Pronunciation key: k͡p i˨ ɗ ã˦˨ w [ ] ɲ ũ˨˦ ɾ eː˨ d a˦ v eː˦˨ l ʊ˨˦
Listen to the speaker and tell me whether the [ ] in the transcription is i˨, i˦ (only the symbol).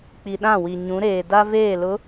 i˨